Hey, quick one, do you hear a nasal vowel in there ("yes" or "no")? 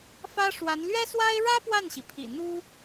no